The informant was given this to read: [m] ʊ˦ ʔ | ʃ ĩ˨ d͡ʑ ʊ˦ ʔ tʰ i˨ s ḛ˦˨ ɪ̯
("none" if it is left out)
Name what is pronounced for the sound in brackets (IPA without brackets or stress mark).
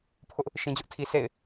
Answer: pʰ